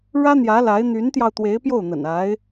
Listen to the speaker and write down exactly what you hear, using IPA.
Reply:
ɻ ä˥ n̪ j ä˧˥ l a˧˥ ɪ̯ n̪ y˧˥ n t̪ j ɑ˧ ʊ̯ t̪ w e˧˥ ɪ̯ p j o˥˩ ʊ̯ n̪ ə̰˨˩ n a˧˥ ɪ̯

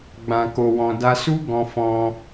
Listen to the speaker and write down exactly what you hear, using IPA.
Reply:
ɡ͡b ã˨ k o˨ w ɔ̃˨ d a˧ s u˦ ɡ ɔ̃˧ f ɔ̃˧

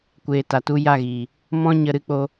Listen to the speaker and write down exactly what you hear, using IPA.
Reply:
kʷ eː˨ t a˨ t u˧ j a˦˨ ɣ iː˨ | m ɔ̃˦ ɲ ə˧ ɾ ɨ˧ k͡p o˦

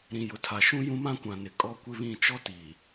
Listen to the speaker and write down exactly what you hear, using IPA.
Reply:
ɾ ĩ˨ j ʊ˨ tʰ a˨ ʃ ũ˦ j ũ˦ m ã˦ kʷ ã˨ n ɪ˨ kʼ ɔ˦ kʷ ɪ˦ β ĩ˦˨ t͡ʃ ɔ˦ t iː˨

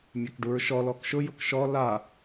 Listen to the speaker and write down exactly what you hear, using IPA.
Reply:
mʲ a k ɖ u ɹ ʃ ɔ l ɔ k ʃ ʊ j ʊ k ʃ ɔ l a

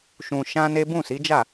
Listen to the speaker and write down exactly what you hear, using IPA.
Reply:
ʃ ũ˧ ʃ ã˦ n e˦ b ũ˦˨ s i˨˦ d͡ʒ a˦˨

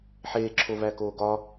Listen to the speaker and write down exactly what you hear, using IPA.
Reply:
ħ eː ǁʰ o v æ k oː ɡ ɒ

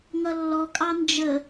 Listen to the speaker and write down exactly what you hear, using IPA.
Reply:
ŋ ʌ lː ɔ kʼ ɑ n d͡ʒ ə

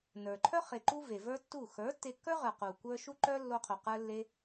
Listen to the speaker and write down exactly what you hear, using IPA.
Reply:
n ə˞˨ ǃʰ œ˦ χ e˨ ǃ u˦ v e˨ v ə˞˦ tː u˦˨ x ə˞˨˦ tː e˧ kː ə˞˦ ʁ ə˞˨ q u˨ kʷ ə˞˦ ʃ u˦ ǃ œ˦ lː o˧ qʰ u˨ q ə˞˦ lː e˦

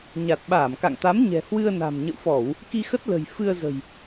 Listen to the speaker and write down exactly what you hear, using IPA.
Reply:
ɲ a˨˩ t̚ ɓ aː˧˩ m k a̰˧˨ ŋ t̪ a˨˦ m ɲ ɛ̤˨˩ h w ɨ˧ ə̯ n a̤˨˩ m ɲ ə̰˧˨ w f ɔ˧˩˨ w | k i˧ x ə˦˥ t̚ l ə̤˨˩ j f ɨ˧ ə̯ z ə̤˨˩ j

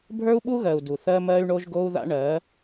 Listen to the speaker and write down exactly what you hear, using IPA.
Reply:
bʱ ə˞˦ u̯ ɓ u˦ ɣ ɜ˨ u̯ d u˨ θ ɜ˦ m ɜ˦ y̯ ɳ o˦ ʒ ɡ o˦ u̯ ð a̰˦ ɳ ɜ˨˦

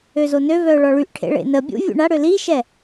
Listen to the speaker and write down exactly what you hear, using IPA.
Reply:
ø z o n ø v œ ʊ̯ ɭ ɔ ɭ y ʔ ʈʰ ḛ ɭ ḛ n ə bʲ ṵ vʲ ṵ ɳ a ɽ ø l i ʃ ɛ

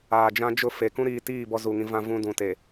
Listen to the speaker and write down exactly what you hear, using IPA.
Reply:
aː˨ d͡ʒ ã˦ d͡ʒ ʊ˦˨ f e˨ k ũ˦ ɾ iː˨ t iː˦˨ b ɔ˦ z u˨ ŋ ĩ˦ v ã˦ v ũ˦ d ũ˨ t e˨

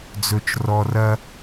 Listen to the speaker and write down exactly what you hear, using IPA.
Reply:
d͡z ɵ˨ t͡ʃ r ɔ˨ r ɐ˦

